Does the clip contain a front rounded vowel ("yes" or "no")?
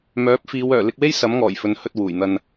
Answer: yes